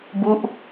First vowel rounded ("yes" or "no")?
yes